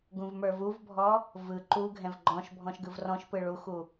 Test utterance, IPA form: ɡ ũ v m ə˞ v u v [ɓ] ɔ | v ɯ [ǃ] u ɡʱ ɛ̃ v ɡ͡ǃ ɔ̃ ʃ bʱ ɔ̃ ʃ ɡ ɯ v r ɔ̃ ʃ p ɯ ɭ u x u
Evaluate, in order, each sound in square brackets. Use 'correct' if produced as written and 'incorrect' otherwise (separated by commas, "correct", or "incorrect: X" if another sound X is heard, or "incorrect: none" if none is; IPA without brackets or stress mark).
incorrect: bʱ, correct